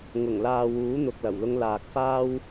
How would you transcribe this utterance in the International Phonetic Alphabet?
ŋʊ˨˩ŋlaː˨ wuː˨˥n̪ʊ˨k̚lɐ˨˩wlʊ˧ŋ laː˨k̚faː˥w

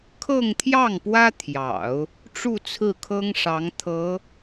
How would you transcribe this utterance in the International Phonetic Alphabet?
kʰɤ˥˧ŋt̪ʰjɑ˥˩ŋpwä˥t̪ʰjɑ̰˨˩˦ʊ̯ | ʈ͡ʂu˥˧ t͡sʰɹ̩˥˩kʰɤ˥ŋʂɑ˧˥ŋ t̪ʰɤ˧˥

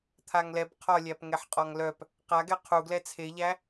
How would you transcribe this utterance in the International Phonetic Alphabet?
t̪ʰaŋlɛb qʰɒlʲæpŋɛħqʼɒŋ lœp | qaɡɛ qʰuɡlɛ t͡sʰeʎæ

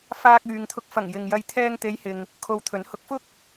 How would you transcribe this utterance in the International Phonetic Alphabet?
faː˧k̚yː˨ŋt̪ʰʊ˧k̚ fɐ˨˩ŋ jɪ˨ŋjɐ˧j t̪ʰɛː˧ŋt̪e˨˧j hɪ˨ŋ | kʰo˧wt̪ʰɵ˨˥n hʊ˨˥k̚fʊ˥k̚

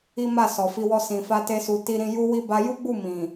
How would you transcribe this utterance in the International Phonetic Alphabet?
i˦ma˦˨sɔ˨fi˧ wɔ˧sĩ˨fa˧ te˦su˧ti˦ɾĩ˦ ju˦wi˦ ba˧ju˦ɡ͡bu˦˨ mĩ˨

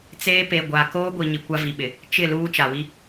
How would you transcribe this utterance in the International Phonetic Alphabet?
t͡seː˦ pe˨ɡʷa˨ koː˦ɡʷi˨ ɲi˨kʷa˦vi˨ɓɪ˨ | t͡ʃɪ˦˨ luː˦t͡ʃa˨wi˦

